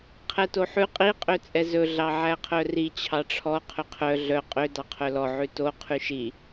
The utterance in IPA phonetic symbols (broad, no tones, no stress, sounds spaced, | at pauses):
qʰ ɛ t o ħ ʉ qʼ i qʼ ø t͡sʼ ɛ z ɵ ɮ ɑ ʕ æ qʰ œ r i t͡ɕʰ ɑ ʈ͡ʂʰ ɔ qʰ ø qʰ œ ɮ œ qʼ ø d ɑ qʰ œ l ɔ ʕ ʉ t o qʰ y ʃ i